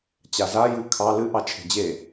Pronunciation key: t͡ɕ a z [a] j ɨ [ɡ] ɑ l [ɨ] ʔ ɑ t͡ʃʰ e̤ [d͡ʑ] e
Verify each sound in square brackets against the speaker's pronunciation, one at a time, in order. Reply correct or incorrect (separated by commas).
correct, incorrect, correct, correct